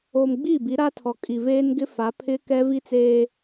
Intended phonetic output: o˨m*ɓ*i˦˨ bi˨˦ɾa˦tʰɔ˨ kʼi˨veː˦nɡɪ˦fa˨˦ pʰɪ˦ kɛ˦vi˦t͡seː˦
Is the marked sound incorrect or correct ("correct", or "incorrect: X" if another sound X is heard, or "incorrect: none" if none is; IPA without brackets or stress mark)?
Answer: incorrect: ɡ͡b